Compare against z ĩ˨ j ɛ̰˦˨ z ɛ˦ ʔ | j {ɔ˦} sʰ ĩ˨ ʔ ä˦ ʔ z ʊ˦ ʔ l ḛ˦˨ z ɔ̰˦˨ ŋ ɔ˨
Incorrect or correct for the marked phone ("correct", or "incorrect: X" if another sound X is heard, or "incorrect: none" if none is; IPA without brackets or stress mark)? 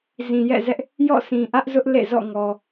incorrect: ɔ̰˦˨